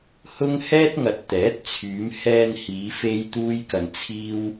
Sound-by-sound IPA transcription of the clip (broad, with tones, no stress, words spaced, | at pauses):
hʊ˥ŋ hɛː˥t̚ŋɐ˨t̚t̪ɛː˨˥t̚ t͡sʰyː˨˧mhɛː˧nhiː˨˧ fe˥jt̪uː˥jkɐ˧nt͡sʰiː˥w